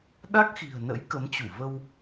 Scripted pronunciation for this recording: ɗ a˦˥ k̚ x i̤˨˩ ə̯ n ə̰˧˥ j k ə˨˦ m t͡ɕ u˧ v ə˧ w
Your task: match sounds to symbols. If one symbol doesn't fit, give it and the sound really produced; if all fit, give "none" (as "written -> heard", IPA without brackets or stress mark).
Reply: u˧ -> u˧˩